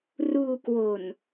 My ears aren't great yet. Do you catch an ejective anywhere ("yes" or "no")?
no